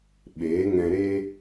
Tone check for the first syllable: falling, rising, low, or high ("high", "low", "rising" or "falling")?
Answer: rising